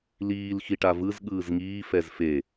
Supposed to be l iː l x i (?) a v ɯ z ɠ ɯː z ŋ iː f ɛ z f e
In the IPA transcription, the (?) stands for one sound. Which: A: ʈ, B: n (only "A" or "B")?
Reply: A